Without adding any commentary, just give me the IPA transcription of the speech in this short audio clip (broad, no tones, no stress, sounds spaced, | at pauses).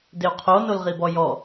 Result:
d ɪ u̯ qʰ o n o l ʁ i b ɔ j ɔ